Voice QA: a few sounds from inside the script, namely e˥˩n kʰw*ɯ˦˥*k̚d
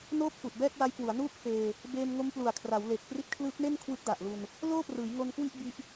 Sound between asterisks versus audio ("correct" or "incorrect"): correct